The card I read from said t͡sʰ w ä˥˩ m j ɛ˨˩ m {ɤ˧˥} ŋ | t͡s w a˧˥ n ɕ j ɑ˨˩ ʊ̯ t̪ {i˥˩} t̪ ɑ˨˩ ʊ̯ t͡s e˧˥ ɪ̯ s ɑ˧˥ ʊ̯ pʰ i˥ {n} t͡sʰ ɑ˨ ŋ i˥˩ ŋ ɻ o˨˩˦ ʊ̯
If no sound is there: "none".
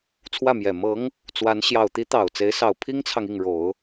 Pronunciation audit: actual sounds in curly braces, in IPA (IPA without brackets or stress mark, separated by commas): ɤ˧˥, i˧˥, ŋ